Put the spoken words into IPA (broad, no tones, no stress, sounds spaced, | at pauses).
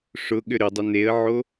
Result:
ʂ ʊ ɠ ʏ ɾ ʏ dˤ ʏ n e ə̯ ʕ o